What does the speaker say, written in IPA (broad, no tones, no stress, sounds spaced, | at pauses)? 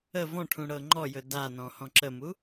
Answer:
ə v ɔ̃ ʈʰ ũ ɽ ɤ ŋ͡ǃ ɔ j ɵ d a n ɔ̃ h ɔ̃ ǁ ə m u